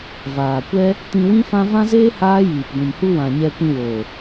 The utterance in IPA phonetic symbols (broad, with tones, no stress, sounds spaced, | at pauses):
v aː˨ kʷ ɛ˦ | t ĩ˧ w ĩ˦ f ã˦ v ã˦ z eː˦ h aː˦ j iː˨ p ɡʷ ĩ˨ m h u˧ w ã˨ ɲ ɛ˧ kʷ ĩ˧ w oː˨